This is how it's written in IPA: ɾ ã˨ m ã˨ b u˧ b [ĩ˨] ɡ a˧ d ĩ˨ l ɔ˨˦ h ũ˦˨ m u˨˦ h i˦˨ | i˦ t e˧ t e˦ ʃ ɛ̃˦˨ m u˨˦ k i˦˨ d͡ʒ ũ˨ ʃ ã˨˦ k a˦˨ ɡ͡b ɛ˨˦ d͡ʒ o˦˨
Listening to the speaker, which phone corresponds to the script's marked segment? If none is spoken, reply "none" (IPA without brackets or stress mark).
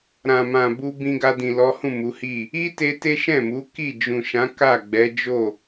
ĩ˧